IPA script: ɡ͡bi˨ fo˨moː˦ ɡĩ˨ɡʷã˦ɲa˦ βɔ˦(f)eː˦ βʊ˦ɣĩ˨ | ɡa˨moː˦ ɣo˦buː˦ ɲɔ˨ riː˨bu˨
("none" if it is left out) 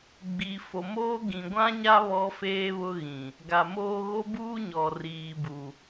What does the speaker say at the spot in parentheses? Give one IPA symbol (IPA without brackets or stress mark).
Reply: f